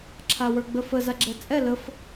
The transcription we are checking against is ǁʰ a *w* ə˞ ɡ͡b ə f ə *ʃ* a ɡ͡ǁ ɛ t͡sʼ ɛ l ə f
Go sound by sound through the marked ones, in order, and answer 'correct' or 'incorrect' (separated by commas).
correct, incorrect